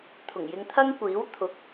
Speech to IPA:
t̪ʰʊ˨˩ŋjɪ˧ŋt̪ʰɐ˥ŋkʷiː˨˥w t̪ʰʊ˨˥k̚

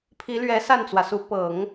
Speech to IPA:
pʰi˧˥lɥɛ˧˥ sa˥˩nt͡swä˩su˧˥ pɤ˨˩˦ŋ

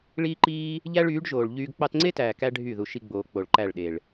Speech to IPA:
ɭiː˦ǃiː˦ | ʎæ˦ɭyː˨˦ɖʒoː˨ɭʎyː˧ɡ k͡pɑ˧tŋ͡ǀe˦tæː˨ kæ˦ɖʱy˦˨ ðu˧ʃi˦ɡ͡boː˧ k͡po˨ɭǃæ˦˨ɭɗe˨ɭ

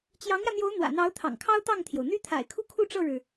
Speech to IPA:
t͡ɕjɑ˧˥ŋjä˧n̪jo˧˥ʊ̯ n̪wä̰˨˩n̪ɑ˧˥ʊ̯ t̪ʰɑ̰˨˩ŋkʰɑ˥ʊ̯t̪ɑ˥˩ŋt̪ʰjo˩ʊ̯ n̪y˥t̪ʰa̰˨˩ɪ̯kʰu˥ kʰu˥˧ʈ͡ʂɤ˥˩ɻɻ̩˩

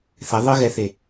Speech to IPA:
θɛ ðˤɯɣɛθe

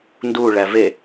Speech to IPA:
ndu ɭæve

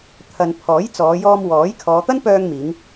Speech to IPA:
t̪ʰɐ˧n pʰɔː˨˥jt͡sɔː˨˧jɔː˧m wɔː˨˥j kʰɔː˨˧t̪ɐ˥npœː˧ŋmiː˨˧ŋ

